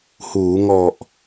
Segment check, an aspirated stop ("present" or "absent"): absent